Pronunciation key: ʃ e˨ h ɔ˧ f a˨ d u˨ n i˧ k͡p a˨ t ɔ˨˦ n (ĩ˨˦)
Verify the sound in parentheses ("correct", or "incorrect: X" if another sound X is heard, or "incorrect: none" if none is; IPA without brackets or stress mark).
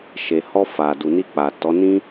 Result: incorrect: ĩ˦